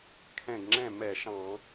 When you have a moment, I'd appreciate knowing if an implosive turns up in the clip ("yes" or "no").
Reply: no